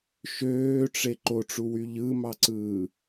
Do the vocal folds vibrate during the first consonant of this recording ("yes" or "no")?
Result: no